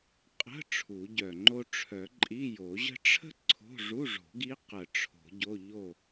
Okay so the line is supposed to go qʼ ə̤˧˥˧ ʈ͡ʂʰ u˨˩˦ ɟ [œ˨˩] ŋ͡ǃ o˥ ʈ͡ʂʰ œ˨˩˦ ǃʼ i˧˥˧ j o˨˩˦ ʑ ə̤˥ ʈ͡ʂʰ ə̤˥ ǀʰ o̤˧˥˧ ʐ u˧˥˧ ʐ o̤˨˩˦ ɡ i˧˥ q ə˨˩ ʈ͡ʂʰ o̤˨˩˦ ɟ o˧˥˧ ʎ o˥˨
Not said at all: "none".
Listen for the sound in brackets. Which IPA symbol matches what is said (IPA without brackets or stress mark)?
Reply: œ˨˩